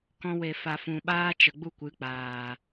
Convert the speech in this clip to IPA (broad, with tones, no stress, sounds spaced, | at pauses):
k ɔ̃˧ w e˨ f a˨ f ũ˨ ɓ aː˦ t͡ʃ ə˨ ɡ͡b u˦ kʷ ɨ˨˦ k͡p aː˨